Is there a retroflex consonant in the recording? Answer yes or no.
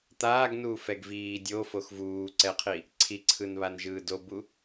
no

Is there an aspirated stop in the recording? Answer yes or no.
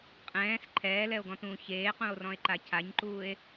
yes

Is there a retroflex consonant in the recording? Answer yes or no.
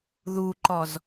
no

